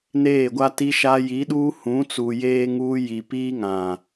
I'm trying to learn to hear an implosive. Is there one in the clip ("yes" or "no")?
yes